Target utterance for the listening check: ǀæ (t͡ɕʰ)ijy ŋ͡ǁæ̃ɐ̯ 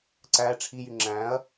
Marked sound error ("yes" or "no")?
yes